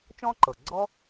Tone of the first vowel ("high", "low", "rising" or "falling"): high